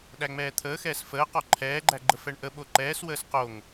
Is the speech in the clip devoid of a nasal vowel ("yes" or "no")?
yes